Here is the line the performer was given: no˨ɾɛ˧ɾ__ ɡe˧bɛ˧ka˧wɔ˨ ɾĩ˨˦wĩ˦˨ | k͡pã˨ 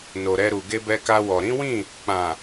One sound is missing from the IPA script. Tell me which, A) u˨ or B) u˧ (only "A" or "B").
A